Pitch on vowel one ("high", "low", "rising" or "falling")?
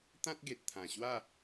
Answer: high